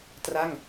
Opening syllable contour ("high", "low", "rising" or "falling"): falling